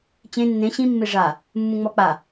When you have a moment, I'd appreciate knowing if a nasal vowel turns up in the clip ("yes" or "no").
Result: yes